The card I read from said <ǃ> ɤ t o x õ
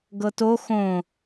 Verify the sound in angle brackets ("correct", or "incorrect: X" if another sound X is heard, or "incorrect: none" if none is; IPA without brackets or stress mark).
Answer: incorrect: ɡ